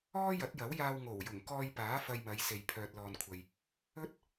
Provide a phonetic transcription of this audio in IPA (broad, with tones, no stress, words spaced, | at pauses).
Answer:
ɔː˥jɐ˨˥t̚jɐ˨˥wjaː˧w ŋo˨˩wjʊ˨˩ŋkɔː˧jpaː˨˥ fɐ˧jmɐ˨˧jse˨j pʰœː˨t̚lɔː˨nkʷʰɐ˨j | ɵ˥t̚